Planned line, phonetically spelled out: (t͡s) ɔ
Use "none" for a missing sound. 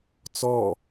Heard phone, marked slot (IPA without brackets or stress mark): t͡s